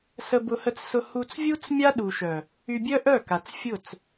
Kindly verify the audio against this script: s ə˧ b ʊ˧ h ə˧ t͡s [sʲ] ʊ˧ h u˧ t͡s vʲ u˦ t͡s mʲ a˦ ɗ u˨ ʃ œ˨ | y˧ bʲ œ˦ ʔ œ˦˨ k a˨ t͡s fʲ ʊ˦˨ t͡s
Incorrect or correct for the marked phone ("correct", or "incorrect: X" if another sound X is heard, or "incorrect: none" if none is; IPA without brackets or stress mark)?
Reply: incorrect: s